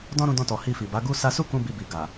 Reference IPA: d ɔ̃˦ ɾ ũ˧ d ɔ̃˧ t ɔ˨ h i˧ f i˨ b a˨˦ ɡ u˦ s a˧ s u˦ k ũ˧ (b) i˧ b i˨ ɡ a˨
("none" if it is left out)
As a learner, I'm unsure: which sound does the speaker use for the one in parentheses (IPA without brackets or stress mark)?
b